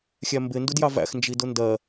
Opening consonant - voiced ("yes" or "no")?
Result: no